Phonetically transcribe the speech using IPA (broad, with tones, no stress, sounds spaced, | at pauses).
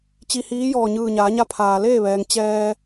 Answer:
t͡ɕ i˧ h iː˧˥ j ɔː˧˩ ɲ ɯː˧˩ ɲ aː˩˧ ɲ a˧˥ pʰ aː˩ l eː˥˨ ʋ ɛː˩ ŋ t͡ɕ ɛː˧